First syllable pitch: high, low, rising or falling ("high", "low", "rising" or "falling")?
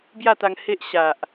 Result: falling